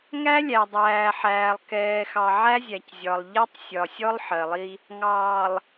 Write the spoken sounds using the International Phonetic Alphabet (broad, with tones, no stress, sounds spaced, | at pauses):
ŋ æ˦ lʲ æ˨ dˤ æː˨ ħ æː˨ lˠ k ɛː˨ x ɑ˨ ʕ æ˦ zʲ æ˨ c zʲ ɒ˨ lˠ ʎ ɛ˦ tˤ sʲ ɒ˨ sʲ ɔ˦ lˠ ħ ɜ˨ lˠ i˦ | ŋ ɑː˨ lˠ